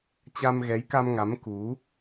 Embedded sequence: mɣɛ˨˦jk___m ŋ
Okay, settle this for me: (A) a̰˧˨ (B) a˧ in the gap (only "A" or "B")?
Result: B